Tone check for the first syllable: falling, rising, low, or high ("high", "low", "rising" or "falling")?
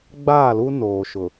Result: falling